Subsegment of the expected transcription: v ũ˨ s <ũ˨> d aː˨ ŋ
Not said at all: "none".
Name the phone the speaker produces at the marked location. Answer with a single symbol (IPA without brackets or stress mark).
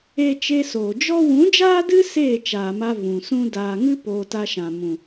ũ˦